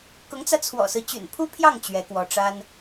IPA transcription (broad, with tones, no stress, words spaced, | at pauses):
kʊ˧˥ŋt͡sä˧t͡sʰwɔ̰˨˩sɹ̩˦ t͡ɕy̰˨˩npʰu˥pʰjɑ˥˩ŋ t͡ɕɥɛ˧˥kwɔ˧˥ ʈ͡ʂa˥n